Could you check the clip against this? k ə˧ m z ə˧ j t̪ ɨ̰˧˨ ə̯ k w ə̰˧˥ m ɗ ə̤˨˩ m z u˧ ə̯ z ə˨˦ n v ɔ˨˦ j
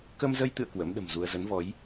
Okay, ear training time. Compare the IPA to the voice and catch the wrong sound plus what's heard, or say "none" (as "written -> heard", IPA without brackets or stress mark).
none